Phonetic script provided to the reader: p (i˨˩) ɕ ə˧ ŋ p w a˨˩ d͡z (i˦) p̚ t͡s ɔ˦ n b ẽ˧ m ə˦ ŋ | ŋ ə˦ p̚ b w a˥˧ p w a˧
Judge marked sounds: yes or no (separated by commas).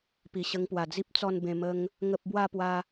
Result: yes, yes